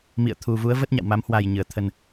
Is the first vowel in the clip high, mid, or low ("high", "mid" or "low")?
high